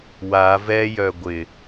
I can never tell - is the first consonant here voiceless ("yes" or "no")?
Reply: no